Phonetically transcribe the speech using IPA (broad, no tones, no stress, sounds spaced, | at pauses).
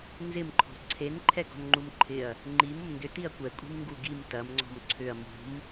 n z ɪ m ǃʰ ɔ̤ ǀʰ e n ǃʰ ɛ ɡ ɔ̤ n ŋ͡ǃ u m ǃʰ ɪ ɐ̯ | ŋ͡ǃ i m ʊ m n d ʏ t i ɐ̯ kʷ ɛ kʷʼ i̤ m ŋ ɡ u ɡ i m t ɐ m ŋ͡ǀ ɔ̤ m ǀʰ ʏ ɐ̯ m ṳ m